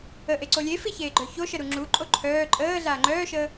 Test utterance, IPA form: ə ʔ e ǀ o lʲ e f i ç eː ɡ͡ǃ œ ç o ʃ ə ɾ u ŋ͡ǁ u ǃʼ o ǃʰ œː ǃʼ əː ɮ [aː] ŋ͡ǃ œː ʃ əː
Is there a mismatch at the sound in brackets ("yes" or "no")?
no